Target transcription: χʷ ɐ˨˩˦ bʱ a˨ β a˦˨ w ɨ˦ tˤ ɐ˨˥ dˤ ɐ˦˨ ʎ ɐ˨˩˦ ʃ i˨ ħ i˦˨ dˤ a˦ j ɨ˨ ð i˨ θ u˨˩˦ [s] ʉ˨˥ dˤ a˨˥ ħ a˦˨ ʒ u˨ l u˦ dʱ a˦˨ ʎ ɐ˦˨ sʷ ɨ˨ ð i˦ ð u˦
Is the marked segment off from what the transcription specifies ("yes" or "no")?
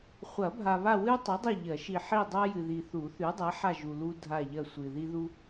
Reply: yes